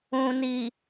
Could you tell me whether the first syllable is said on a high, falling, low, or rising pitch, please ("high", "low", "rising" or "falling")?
low